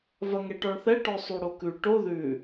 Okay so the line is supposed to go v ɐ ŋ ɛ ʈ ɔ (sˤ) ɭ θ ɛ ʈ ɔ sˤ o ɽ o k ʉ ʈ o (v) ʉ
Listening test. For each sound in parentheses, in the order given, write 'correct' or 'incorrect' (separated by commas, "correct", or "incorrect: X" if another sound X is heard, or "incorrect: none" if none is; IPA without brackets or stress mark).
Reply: incorrect: none, incorrect: ð